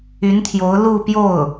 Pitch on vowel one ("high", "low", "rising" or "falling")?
rising